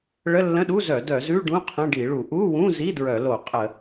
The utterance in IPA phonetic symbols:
ɭ ə˧˥˧ lː ə̃˧˥˧ ɗ u˧˥˧ z œ˧˩˧ d œ˧˩˧ z ʉ˧˥˧ ɖ ũ˧˥˧ qʰ ə̃˧˥˧ ɖ i˧˩˧ ɭ u˧˩˧ ʔ u˧˥˧ w ũ˧˥˧ z i˧˥˧ d ɹ œ˧˩˧ l o˧˩˧ qʼ ə˧˩˧

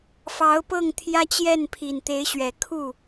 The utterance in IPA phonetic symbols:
f ɑ˧˥ ʊ̯ p ɤ˥˩ ŋ t̪ʰ j ä˥ t͡ɕ j ɛ˥˩ n pʰ i˨˩ n t̪ e˧˥ ɪ̯ ɕ ɥ ɛ˨˩ kʰ u˥˩

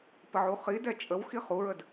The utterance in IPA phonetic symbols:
p ə ʕ u χ i d ɛ t͡ʃʼ ə w x i χ u ɹ ə d

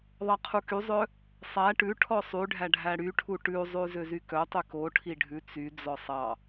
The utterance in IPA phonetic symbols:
ðˤ ɑ qʰ u k y zˤ œ | sˤ æ ʈ ʉ ʈʰ ɔ sˤ y ɖʱ æ ɖʱ æ ɽ y ʈʰ u ʈ ʉ zˤ ʉ z ø z y k œ tˤ y k o ʈʰ i ɖʱ ʉ t͡s y d͡z ɔ sˤ ɑ

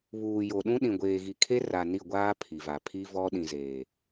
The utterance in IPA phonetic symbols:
β uː˨ j o˨ ɗ ũ˦ ɗ ĩ˨ ɡʷ eː˨ ɣ i˨ kʰ e˦ r a˨ n i˦˨ ɡʷ aː˦ pʰ i˨ v a˨ pʰ i˦ v ɔ˦ ɗ ĩ˨ z eː˨

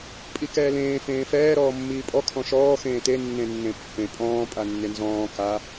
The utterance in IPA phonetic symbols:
pʼ i k ɛː l ẽː f ẽː f ɛː ɾ ɔː mː iː pʼ ɔ kʰ ɔ̃ ʃ ɔː x ẽː t e nː ẽ nː ẽ pː ẽ pʼ ɔ̃ː pʼ a nː ɪ n z ɔ̃ː k a

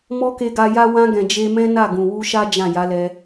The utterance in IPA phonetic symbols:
m ɔ˦ k e˧ ɡ a˧ j a˦ w ã˧ ɡ ɛ̃˨ d͡ʒ e˧ m ɛ̃˦ n a˦˨ ɡ ũ˨ w u˧ ʃ a˦ d͡ʒ ã˦˨ j a˨˦ l ɛ˧

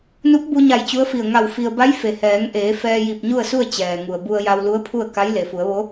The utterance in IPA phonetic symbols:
n u˧˥ p̚ b u˧ ɲ a˧˩ j t͡ɕ u˧˥ ə̯ f i˧˩ ə̯ ŋ a˧˩ w f i˧ ə̯ b a˧˥ j f e˩ h ɛː˩˧ ŋ ʔ eː˩˧ f ɛː˧ j i˧˩ p̚ ɲ u˥˨ ə̯ s u˥˨ ə̯ t͡ɕ ɛː˩ ŋ u˩ ə̯ b u˧ ə̯ j a˧ w l u˧˥ ə̯ pʰ u˥˨ ə̯ k a˧˥ j l e˩ f u˩˧ ə̯ ʋ o˧˥

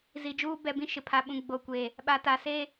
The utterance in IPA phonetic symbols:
z i˨ d͡ʒ uː˦ b ɛ˦˨ b ĩ˦ ʃ ɪ˨ pʰ a˨ ɓ ũ˨ ɡ͡b o˨ kʷ e˨ | ɓ a˨ t a˨ s e˦

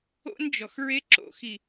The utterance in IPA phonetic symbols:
o̰˦ n d͡ʒ ɔ˨ x ɹ e˦ ǁ o̰˨ x i˨

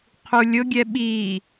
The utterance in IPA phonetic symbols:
qʰ u lʲ ʊ ɡʲ ɛ ɓ i

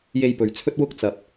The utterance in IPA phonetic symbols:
j e˧ j p ɵ˨ ɥ t͡sʰ ɵ˥ t̚ w ʊ˥ k̚ t͡s ɐ˨ p̚

